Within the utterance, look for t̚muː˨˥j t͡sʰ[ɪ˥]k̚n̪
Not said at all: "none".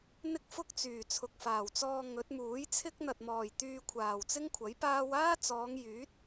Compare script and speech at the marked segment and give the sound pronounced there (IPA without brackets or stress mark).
ɪ˥